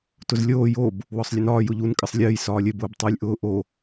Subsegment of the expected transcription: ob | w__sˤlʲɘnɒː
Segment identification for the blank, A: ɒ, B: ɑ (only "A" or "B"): A